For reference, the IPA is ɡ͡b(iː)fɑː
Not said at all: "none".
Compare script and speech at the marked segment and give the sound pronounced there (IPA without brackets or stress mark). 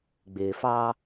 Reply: ɪː